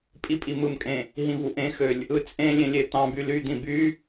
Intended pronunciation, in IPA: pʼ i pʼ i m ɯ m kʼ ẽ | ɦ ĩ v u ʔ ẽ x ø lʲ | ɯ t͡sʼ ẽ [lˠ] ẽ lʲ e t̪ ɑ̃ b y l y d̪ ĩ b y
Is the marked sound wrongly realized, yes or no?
yes